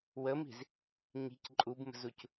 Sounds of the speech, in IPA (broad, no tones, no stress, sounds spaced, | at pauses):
w ə m i̤ z | ɲ i̤ c ǃʼ u b m ə̤ z u c